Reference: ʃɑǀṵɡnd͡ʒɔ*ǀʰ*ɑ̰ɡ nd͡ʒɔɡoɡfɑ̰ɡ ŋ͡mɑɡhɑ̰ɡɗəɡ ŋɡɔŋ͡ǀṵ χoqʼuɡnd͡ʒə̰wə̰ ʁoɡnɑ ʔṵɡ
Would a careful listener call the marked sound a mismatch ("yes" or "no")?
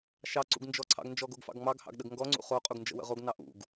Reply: no